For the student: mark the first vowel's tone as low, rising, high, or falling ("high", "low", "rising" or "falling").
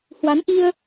rising